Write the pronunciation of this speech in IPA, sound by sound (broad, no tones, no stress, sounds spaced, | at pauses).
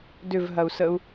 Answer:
d ʏ v ɦ ɐ u̯ s ə u̯